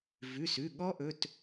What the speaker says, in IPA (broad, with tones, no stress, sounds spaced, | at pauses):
v ʉ˩˧˩ s ʉ˩˧˩ ɠ ɔ˦˥ ʔ ɵ˩˧˩ t